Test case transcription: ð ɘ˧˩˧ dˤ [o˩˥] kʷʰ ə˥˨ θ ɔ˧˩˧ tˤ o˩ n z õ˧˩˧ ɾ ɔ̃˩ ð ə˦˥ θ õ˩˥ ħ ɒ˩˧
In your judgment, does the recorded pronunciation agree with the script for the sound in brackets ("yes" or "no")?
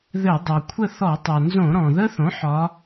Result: no